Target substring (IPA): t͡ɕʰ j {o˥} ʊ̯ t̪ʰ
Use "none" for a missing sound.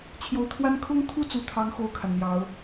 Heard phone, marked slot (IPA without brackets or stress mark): o˧˥